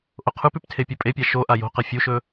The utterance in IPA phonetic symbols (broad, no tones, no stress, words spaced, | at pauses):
ʔoqʰʉpʉp tʰepʲɵpʼepʲa ʃo ʔajo̤qɐ fʲuʃɵ